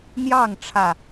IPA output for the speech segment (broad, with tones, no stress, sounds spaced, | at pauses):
n̪ j ɑ˥˨ ŋ ʈ͡ʂʰ ä˥˨